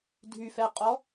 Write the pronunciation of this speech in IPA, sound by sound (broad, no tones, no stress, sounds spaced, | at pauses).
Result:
dʱ y f ɛ qʼ ɔ